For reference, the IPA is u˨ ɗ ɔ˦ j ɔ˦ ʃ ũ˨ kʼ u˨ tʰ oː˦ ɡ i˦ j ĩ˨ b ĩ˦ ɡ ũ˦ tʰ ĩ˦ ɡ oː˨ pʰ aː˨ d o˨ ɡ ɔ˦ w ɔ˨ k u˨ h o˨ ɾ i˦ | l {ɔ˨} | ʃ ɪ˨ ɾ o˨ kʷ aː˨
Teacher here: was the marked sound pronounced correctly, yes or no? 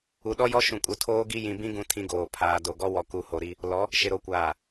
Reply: no